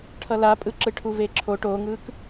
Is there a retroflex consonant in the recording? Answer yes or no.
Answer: yes